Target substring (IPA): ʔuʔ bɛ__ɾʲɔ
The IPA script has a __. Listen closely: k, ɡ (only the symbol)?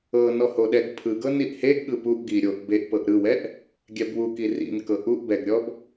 ɡ